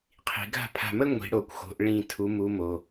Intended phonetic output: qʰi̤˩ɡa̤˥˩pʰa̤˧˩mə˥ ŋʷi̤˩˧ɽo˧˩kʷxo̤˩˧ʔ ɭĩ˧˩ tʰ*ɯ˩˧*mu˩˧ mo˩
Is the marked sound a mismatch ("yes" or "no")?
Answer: yes